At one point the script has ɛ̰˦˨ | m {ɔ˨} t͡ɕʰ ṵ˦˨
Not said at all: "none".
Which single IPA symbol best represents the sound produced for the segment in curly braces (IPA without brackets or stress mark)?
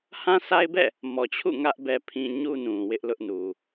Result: ɔ˨